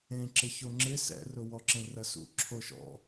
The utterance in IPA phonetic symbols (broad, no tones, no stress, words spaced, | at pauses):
ẽǁɪço ŋ͡ǁɪ sɛ̰rʊ wɔǁẽrɐsṵ ǁʰoʃɔ̰